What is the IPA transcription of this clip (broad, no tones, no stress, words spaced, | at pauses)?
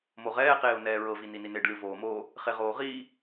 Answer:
moʁɛːqeːʊ̯ nɛːɹɤvini nineɖlʲo voːmoː | χeʁoːʁiː